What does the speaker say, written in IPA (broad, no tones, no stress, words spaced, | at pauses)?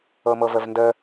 ɤmɤvəvndə